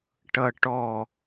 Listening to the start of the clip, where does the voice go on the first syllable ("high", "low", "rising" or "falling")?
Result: low